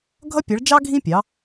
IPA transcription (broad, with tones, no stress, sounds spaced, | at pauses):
ɡʱ ʌ˦ pʲ ʌ˩˧ ɭ d͡ʒ ɑ˦ ɡʱ ĩ˦ pʲ ɑ˩˧